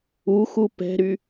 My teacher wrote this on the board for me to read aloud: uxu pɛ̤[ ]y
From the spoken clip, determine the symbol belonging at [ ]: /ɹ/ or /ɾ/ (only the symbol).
ɾ